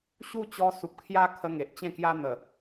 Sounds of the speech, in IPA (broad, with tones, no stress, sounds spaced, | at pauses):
ɕ u˥˧ t͡ɕ ɔ˧ s u˨ p̚ kʰ j a˦ kʰ ə˧ ŋ e˨ ʔ t͡ɕ ẽ˥˧ k j a˦ n̪ ə˨˩